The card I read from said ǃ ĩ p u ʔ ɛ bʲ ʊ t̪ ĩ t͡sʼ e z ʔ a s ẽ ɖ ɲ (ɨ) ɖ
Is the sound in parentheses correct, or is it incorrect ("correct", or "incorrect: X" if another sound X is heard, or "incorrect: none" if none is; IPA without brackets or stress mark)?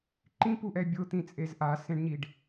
incorrect: i